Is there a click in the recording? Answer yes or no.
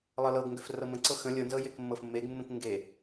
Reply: yes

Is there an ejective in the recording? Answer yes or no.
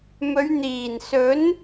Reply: no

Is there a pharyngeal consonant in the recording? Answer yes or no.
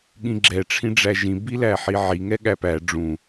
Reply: yes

